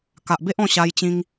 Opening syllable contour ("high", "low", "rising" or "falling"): low